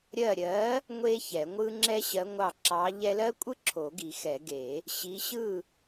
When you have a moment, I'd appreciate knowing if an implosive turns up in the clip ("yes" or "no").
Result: no